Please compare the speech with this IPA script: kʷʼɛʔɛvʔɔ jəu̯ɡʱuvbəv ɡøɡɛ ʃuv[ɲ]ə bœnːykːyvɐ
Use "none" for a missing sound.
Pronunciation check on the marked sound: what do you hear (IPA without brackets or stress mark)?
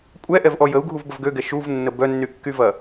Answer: nː